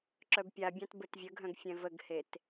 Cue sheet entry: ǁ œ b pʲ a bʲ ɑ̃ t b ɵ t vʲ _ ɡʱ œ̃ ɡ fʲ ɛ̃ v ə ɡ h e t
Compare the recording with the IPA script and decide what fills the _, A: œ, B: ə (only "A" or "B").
B